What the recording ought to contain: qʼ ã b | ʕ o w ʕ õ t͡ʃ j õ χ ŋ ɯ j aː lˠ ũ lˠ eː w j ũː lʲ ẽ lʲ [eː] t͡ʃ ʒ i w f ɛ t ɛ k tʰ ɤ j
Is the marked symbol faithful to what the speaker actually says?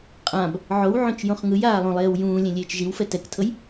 yes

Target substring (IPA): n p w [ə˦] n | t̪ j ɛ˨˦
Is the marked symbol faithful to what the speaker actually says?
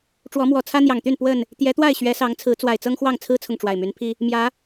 no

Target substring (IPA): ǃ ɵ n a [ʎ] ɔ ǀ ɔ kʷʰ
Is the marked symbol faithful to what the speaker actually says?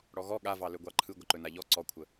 yes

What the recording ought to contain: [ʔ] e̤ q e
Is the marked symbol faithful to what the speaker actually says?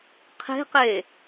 no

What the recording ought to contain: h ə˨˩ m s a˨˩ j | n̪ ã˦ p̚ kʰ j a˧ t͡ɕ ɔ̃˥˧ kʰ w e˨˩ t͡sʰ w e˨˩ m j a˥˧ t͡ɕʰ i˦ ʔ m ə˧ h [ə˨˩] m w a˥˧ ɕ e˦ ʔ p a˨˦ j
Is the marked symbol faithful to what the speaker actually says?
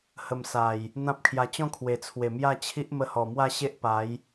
no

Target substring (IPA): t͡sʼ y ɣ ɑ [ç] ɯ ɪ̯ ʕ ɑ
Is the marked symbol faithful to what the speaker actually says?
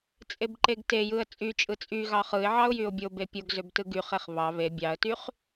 no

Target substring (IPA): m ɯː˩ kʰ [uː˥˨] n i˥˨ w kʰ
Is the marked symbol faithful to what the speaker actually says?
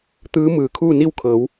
yes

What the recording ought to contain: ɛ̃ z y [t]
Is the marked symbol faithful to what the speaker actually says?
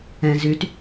yes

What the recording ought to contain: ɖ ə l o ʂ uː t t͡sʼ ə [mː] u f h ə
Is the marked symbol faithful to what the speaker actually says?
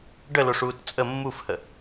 yes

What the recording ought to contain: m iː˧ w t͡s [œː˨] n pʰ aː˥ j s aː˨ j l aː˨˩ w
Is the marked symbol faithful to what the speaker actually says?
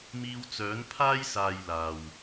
no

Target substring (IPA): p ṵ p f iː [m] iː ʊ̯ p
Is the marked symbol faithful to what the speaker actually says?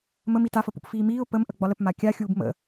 yes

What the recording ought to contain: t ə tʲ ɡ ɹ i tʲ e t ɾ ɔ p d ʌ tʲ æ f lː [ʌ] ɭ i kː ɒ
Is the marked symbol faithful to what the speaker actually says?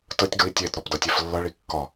yes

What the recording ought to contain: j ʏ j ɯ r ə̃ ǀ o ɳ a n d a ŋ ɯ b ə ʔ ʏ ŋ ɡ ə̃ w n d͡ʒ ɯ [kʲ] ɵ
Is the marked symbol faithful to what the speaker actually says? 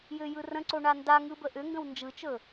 no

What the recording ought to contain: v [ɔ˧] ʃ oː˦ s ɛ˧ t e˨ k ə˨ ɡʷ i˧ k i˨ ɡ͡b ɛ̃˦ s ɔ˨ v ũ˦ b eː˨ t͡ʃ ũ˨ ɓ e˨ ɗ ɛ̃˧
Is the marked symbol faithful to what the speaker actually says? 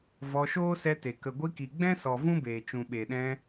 yes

